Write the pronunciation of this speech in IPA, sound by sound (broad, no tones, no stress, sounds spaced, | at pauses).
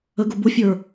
ə ɡ ʊ b ʊ fʲ ə˞